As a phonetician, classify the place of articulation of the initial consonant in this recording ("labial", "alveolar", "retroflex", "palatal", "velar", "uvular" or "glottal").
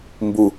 labial